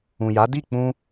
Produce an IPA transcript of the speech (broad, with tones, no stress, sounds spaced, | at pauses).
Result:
ũ˨ j a˨˦ d i˦˨ k͡p ũ˧